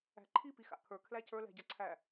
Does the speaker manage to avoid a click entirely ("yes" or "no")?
no